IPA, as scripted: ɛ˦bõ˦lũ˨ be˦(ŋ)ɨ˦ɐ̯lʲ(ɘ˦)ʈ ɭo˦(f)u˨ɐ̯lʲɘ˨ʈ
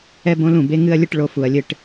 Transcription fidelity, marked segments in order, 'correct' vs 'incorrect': correct, correct, correct

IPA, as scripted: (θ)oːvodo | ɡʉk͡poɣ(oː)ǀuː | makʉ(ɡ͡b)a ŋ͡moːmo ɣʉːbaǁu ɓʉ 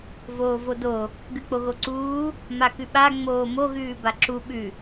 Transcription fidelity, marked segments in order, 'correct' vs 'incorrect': incorrect: v, incorrect: o, incorrect: ɓ

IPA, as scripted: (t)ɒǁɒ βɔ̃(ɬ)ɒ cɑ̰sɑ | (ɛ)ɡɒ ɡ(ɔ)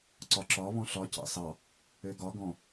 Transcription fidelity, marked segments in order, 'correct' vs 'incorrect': incorrect: ǀ, correct, incorrect: ø, incorrect: ɔ̃

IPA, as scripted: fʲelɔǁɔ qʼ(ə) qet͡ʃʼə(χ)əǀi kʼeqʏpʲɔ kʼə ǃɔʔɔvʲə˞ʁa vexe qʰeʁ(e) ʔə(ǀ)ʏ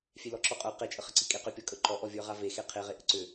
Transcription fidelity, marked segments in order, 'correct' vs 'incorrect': incorrect: ə˞, correct, correct, correct

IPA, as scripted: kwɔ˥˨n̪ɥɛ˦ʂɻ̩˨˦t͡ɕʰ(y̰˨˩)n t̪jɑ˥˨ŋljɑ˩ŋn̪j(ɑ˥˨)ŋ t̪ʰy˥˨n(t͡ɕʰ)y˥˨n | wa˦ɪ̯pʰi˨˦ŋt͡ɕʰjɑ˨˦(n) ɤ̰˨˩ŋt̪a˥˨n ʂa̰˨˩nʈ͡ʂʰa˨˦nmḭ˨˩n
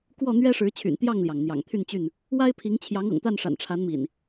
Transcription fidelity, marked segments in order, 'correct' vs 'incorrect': correct, incorrect: ɑ̰˨˩, incorrect: t͡ɕ, incorrect: ŋ

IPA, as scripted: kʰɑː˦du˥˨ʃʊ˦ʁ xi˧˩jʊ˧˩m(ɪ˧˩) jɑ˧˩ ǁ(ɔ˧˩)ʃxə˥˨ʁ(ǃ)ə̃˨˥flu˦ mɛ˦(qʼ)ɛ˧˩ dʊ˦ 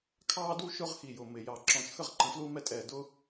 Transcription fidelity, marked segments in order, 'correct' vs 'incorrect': correct, incorrect: ɔ̃˧˩, correct, incorrect: tʼ

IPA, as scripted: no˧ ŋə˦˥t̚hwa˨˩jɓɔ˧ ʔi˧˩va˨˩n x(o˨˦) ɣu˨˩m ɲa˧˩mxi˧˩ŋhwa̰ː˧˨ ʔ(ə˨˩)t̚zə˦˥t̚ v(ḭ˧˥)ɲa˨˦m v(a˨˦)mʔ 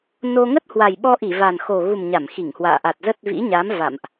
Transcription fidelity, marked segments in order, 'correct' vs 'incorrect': incorrect: o˨˩, incorrect: a˨˩, correct, incorrect: a̰˧˨

